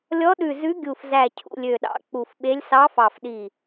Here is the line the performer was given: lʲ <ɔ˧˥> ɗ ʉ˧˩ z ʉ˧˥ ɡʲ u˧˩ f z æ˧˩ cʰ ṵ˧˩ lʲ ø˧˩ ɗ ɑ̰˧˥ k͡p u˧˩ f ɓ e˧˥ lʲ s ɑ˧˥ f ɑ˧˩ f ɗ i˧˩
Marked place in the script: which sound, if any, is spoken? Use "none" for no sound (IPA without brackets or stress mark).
ɔ˧˥